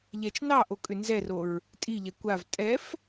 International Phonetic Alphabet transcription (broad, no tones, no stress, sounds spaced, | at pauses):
ʎ ɛ t͡ʃ n ɑ ʔ o kʼ ʏ n z ɛ r o ɹ | tʼ i ʎ ɛ kʷ a v tʼ ɛ f